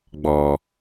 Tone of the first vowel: low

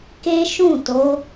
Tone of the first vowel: high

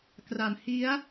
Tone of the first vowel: low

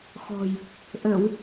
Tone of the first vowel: low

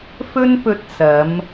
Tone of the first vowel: high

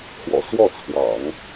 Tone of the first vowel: low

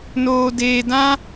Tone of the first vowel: low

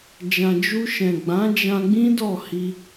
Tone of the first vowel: low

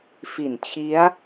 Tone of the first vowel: low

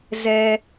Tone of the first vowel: low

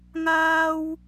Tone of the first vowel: high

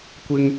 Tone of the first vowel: low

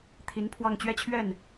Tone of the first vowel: rising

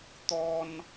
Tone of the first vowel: high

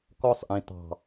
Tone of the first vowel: high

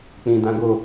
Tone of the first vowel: low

